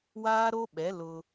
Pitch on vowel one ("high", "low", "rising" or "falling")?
high